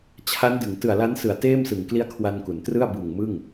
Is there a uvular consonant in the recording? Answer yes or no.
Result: no